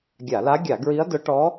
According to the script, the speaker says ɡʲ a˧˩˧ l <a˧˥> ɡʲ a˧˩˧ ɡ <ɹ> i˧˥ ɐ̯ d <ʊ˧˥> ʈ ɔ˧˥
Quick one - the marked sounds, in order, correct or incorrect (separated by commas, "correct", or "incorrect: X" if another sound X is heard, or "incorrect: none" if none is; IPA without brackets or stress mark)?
correct, correct, correct